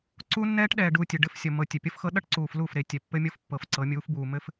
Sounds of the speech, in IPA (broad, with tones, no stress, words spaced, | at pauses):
ǀu˦nːɛː˦ʈ ɗɛː˨ɖuː˨ tʲɘ˨ɖɘ˦fsʲʌ˨ mɤ˨tʲɘ˨pʲʌ˦fxɤ˦ ɗʌ˦ʈǀuː˨f lu˦˨fɾe˨ tʲɛ˨pːɘ˦mʲɤ˦fpːɤ˨f ǀɤ˨˦mʲuː˨˦fbuː˨ mɘ˦f